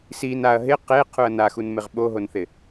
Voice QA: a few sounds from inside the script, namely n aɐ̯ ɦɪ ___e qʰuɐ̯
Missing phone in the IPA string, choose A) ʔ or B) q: B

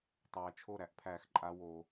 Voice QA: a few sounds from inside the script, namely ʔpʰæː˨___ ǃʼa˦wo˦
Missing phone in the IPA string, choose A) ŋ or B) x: B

